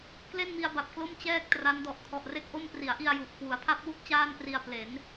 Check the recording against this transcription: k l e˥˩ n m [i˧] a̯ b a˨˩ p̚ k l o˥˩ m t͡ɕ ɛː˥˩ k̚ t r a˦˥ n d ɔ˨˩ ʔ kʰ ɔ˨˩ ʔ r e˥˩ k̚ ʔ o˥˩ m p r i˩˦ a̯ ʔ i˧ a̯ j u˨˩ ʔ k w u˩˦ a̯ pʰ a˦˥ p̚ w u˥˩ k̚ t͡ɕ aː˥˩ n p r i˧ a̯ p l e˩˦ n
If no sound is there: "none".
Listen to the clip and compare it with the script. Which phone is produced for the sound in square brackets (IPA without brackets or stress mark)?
i˧